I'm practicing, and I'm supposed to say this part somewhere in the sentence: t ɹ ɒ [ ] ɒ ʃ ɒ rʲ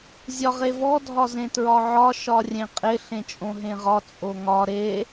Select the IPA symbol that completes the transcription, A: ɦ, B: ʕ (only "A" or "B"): B